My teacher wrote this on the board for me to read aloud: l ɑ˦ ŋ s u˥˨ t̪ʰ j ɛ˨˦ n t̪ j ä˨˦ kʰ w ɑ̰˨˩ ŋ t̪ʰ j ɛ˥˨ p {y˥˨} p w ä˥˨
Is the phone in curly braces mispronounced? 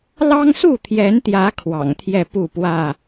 yes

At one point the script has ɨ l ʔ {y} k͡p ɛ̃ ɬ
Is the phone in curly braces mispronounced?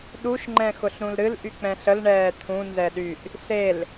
no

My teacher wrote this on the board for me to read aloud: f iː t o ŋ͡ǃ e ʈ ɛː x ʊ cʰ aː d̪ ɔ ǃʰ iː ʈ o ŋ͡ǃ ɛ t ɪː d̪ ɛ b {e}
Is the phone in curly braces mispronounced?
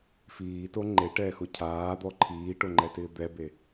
no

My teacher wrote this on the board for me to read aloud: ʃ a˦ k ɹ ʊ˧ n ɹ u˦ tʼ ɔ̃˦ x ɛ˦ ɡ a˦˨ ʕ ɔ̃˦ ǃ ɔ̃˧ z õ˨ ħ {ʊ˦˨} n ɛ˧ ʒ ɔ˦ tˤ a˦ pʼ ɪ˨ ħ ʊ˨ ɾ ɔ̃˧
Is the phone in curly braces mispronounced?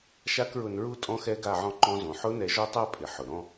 yes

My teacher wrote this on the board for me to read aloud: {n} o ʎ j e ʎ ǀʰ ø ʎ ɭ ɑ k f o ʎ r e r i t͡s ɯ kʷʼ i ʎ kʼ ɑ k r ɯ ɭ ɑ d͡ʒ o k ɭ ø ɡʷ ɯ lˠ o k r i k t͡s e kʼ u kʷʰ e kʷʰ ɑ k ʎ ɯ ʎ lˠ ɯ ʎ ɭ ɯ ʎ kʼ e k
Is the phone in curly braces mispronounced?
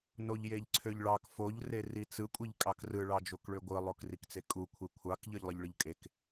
no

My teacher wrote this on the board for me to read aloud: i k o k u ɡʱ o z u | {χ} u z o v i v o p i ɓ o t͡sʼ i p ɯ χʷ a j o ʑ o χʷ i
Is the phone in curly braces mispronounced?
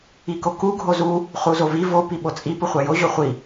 no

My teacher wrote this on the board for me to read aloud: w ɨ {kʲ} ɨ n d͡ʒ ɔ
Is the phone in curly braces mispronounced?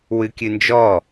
no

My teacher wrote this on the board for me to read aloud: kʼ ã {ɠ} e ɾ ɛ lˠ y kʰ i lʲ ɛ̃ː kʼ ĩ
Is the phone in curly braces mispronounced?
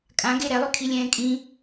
yes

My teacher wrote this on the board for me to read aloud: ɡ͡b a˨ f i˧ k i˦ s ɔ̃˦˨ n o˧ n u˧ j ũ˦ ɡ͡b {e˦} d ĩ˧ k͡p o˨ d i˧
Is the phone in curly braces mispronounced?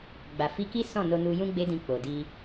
no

